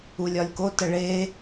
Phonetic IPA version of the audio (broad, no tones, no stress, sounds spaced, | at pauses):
u lʲ ɒ lʲ k o t ə ɭ e